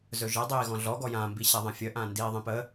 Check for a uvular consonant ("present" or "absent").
absent